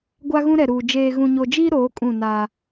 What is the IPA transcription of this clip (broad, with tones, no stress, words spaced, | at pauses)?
ɡʷa˦ɣũ˦ɾɛ˨ɾuː˨ d͡ʒeː˨ɣũ˨ɲo˨d͡ʒiː˦ ɾoː˨˦ kʼũ˦˨naː˦